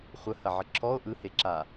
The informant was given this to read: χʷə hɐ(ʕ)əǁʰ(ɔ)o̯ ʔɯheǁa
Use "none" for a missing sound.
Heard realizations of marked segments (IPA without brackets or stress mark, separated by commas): ʕ, ɔ